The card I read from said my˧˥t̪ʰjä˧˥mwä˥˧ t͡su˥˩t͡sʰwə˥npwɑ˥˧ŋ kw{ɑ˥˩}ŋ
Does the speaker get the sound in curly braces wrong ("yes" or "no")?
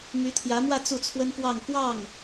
no